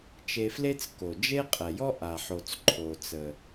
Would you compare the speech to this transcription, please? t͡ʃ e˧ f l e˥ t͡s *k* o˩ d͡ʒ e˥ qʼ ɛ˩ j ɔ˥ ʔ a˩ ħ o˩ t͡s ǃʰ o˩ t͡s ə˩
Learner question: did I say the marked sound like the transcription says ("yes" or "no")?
yes